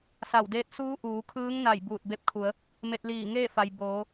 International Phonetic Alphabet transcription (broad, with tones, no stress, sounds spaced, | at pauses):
s a˧˩ w d eː˧˥ t̚ s uː˧˥ ʔ uː˩˧ kʰ ɯː˧˥ ŋ n a˧˩ j b uː˧˩ t̚ b e˧ p̚ kʰ u˩˧ ə̯ | m e˧ t̚ l iː˧˩ ŋ eː˥˨ f a˩ j b oː˩˧